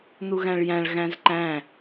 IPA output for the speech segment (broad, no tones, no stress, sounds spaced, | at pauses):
n̪ u ɣ æ̃ ɭ j æ̃ ɭ ɣ æ̃ z ǃ æ̃